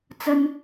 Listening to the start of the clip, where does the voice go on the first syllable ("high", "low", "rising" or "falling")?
high